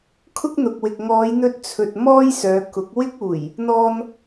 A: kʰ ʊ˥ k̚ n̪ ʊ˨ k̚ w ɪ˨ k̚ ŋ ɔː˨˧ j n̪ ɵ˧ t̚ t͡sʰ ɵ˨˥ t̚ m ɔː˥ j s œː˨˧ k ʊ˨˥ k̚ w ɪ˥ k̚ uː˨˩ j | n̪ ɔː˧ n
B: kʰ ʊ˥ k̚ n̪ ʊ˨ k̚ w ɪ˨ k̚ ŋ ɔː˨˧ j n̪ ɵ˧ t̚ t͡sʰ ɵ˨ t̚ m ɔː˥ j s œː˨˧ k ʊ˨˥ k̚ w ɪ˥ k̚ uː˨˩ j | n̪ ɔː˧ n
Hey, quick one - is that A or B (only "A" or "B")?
B